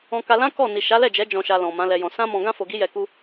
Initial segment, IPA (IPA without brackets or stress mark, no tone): ɔ̃